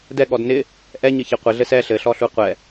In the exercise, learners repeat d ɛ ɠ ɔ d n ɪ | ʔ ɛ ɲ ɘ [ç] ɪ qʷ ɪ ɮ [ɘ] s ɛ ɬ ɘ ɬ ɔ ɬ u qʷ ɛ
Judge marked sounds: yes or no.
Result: yes, yes

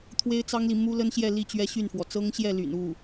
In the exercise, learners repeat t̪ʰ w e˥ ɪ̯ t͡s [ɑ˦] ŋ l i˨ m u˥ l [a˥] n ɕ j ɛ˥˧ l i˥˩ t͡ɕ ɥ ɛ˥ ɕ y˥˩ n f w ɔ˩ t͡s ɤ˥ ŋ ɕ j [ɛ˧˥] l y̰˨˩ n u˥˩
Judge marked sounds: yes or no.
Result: no, no, no

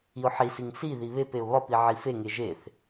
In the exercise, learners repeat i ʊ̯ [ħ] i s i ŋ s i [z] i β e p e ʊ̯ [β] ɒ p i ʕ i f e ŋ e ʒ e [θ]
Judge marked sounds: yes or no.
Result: yes, no, yes, yes

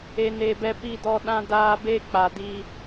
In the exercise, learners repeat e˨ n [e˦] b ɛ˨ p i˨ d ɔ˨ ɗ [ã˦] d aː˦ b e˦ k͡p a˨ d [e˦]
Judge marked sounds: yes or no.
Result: no, yes, no

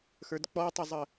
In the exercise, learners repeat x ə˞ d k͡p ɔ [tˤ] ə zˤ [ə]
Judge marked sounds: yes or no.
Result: yes, yes

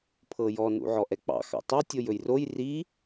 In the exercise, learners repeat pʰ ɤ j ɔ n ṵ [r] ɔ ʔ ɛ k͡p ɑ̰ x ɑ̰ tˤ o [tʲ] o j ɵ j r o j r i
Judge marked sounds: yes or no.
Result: no, yes

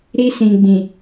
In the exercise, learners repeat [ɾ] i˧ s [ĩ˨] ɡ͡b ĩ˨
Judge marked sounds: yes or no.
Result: yes, yes

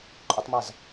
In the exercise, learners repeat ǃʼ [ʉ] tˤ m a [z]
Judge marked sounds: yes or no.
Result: no, yes

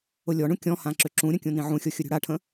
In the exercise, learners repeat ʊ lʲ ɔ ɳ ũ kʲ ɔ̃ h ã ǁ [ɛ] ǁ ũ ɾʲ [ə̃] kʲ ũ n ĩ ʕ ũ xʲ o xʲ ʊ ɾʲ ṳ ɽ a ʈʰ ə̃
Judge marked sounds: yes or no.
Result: no, yes

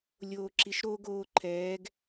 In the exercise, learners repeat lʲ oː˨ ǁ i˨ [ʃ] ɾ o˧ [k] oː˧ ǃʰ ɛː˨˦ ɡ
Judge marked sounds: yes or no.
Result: yes, no

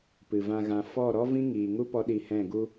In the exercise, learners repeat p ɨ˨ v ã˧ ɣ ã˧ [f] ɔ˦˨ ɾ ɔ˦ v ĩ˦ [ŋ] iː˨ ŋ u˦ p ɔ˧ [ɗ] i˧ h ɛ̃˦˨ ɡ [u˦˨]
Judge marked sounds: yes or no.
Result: yes, yes, yes, no

